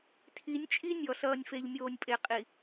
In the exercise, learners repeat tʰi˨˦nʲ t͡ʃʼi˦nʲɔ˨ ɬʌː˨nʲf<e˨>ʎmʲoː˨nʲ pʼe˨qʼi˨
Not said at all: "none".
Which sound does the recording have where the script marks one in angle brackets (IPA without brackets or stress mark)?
e˨